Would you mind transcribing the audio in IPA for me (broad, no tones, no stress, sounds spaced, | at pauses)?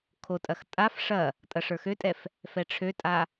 kʰ o tʼ ɐ x tʼ a f ʂ ɐ | tʼ ɐ ʂ ə˞ x ø tʼ ɛ f | f ɛ ʈ͡ʂʰ ø tʼ a